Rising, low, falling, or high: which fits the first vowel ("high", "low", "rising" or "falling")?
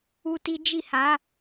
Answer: high